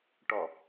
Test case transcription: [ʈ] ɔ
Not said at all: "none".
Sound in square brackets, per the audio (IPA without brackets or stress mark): ʈ